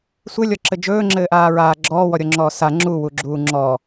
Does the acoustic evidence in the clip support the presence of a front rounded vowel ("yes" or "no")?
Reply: no